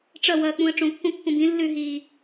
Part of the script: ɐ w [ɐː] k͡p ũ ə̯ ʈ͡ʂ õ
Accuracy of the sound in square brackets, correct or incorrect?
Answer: correct